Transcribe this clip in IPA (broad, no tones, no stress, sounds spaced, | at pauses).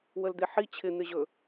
w ə l d̪ e ħ i t͡ɕʰ ɪ n̪ ɪ ʑ ɵ